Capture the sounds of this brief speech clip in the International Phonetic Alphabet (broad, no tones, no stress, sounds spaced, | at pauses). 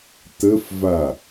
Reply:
t ə f v a